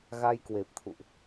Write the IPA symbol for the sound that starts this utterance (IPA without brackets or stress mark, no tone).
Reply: ɣ